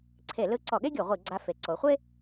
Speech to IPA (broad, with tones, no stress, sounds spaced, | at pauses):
ǀʰ e˧˩˧ l ɯ˧˥ ǀ ɔ˧˩˧ ɠ e˥ ɡʲ o˧˩˧ ʁʷ i˧˩˧ ɡ͡ǀ a˧˥ f e˩˧ ǀ o˩˧ χʷ e˥